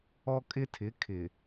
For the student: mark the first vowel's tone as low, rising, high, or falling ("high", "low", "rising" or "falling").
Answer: high